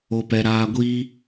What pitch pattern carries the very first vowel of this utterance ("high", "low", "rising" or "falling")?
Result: low